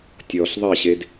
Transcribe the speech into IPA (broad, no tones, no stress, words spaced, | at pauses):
tʲɔɬ ðˤɛɕed